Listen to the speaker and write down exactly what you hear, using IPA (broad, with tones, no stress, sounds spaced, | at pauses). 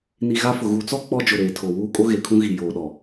n i˨ ɣ a˦ f ʊ˨ ɣ u˨˦ t͡s ɔ˦ k͡p ɔ˦ d͡ʒ ʊ˨ ɾ eː˨ tʰ o˨ w uː˦ kʼ o˦ ɣ e˨ kʰ ũ˦ ɣ i˨ j oː˨ ɗ ɔ˨